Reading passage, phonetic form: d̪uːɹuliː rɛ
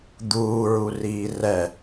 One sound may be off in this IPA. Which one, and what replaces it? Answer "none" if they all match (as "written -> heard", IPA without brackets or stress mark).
l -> r